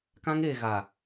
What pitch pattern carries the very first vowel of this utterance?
high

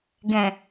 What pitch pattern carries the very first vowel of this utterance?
low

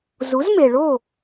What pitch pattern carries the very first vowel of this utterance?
rising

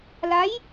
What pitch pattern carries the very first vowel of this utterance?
rising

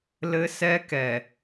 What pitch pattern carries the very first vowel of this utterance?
high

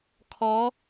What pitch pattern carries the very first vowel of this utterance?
rising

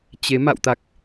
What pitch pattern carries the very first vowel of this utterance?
rising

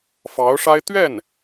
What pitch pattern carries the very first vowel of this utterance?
rising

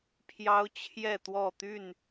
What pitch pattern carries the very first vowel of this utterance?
high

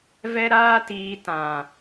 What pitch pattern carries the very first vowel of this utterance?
high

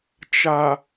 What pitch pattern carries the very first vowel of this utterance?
low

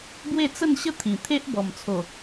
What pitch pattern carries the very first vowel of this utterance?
falling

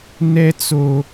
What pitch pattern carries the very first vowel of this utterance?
high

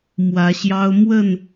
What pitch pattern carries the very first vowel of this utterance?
rising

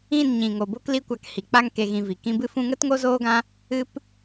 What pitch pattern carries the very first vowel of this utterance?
falling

